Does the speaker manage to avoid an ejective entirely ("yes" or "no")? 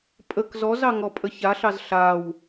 no